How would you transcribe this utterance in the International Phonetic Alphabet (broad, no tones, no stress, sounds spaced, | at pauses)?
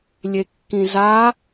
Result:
lʲ e kː ĩ z a